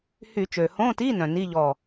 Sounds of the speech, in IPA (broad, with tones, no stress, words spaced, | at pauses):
hy˧˩˧t͡ʃø˩hõ˧˥˧ti˧˥˧ nœ̃˩ni˧˥˧ ʎɔ˧˩